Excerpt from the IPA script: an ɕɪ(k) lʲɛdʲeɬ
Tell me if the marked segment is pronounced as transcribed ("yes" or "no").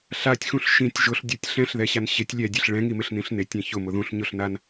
no